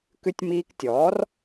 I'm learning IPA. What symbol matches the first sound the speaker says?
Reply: k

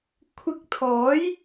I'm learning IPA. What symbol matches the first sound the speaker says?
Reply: kʷʰ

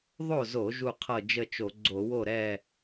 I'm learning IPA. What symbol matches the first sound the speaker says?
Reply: ðˤ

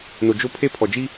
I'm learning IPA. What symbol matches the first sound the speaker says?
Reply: n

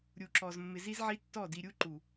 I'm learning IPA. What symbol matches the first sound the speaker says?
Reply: ɾʲ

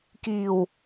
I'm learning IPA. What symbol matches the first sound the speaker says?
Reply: k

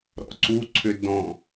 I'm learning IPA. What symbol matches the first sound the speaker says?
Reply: ɾ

